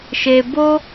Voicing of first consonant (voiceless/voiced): voiceless